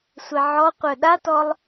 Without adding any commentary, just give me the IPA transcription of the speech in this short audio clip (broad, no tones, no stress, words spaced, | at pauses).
sʷɛʕɔqʷœ ɗatɔlˠ